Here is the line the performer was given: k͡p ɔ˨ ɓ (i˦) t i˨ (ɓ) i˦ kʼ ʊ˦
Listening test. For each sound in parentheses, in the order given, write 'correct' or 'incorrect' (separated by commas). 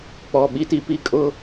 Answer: correct, incorrect